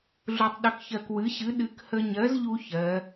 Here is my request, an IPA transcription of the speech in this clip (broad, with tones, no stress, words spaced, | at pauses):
ɮu˧tˤɗə˧kçɜ˧k wɨ˨˥ɕɨ˨˥ ɗɨ˨˥k hə˧ɲɜ˨˥zʎu˧ çɜ˩˧